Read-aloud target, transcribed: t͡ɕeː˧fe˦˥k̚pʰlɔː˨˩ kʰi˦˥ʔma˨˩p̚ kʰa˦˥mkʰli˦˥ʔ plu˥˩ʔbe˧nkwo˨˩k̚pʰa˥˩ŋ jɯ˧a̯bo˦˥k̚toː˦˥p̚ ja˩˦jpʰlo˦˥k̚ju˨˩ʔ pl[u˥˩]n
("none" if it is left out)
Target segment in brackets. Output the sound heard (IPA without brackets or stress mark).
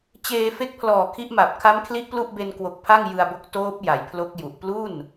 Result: u˥˩